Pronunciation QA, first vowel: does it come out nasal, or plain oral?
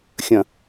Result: nasal